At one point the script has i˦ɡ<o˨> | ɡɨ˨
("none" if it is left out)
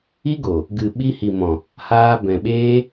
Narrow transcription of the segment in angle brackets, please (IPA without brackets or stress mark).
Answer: o˨